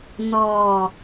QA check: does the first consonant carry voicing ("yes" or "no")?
yes